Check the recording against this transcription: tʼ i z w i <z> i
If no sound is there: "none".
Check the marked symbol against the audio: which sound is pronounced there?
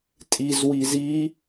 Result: z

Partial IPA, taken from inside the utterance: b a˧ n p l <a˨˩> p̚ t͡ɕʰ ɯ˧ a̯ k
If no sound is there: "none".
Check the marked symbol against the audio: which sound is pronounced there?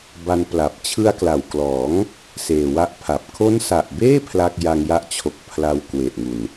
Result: a˨˩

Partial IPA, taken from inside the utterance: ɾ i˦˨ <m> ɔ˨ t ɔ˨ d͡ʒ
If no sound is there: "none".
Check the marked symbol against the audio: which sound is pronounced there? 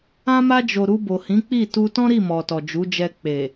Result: m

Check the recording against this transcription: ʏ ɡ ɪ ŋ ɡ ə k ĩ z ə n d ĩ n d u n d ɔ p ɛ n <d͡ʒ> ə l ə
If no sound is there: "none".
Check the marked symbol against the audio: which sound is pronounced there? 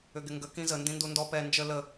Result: d͡ʒ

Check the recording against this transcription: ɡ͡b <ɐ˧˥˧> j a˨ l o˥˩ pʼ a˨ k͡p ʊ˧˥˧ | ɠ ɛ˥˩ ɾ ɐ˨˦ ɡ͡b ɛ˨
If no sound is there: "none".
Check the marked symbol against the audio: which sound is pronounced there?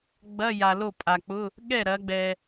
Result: ɐ˧˥˧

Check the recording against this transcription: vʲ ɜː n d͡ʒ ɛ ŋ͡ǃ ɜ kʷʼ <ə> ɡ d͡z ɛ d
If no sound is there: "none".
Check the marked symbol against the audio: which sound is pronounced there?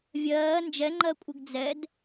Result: ə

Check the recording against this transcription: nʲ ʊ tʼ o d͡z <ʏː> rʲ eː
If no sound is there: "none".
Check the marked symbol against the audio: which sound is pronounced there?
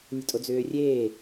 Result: ʏː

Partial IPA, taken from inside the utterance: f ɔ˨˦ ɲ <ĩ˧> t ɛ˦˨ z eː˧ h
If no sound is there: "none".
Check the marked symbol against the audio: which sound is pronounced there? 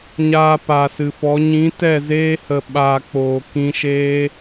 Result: ĩ˨˦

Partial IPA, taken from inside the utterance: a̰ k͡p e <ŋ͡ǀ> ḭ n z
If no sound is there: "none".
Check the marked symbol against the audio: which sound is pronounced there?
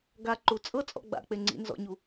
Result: ŋ͡ǀ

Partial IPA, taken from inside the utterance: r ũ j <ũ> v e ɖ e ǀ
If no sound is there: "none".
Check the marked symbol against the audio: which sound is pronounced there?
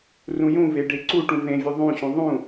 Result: ũ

